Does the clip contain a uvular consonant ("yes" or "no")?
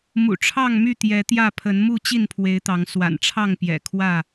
no